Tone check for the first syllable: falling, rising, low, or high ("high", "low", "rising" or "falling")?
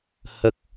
low